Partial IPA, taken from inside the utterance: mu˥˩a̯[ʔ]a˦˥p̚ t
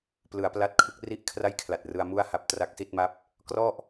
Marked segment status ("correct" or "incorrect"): incorrect